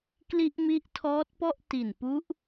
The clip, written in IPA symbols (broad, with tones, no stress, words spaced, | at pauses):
kli˦˥ʔmi˦˥ʔtʰɔː˦˥t̚pɔ˥˩ʔ ti˨˩npu˦˥ʔ